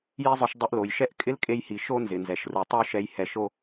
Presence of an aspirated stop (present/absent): absent